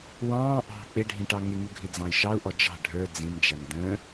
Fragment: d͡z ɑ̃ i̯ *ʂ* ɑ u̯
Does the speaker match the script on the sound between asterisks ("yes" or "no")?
no